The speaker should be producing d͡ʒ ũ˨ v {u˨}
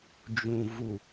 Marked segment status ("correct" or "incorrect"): correct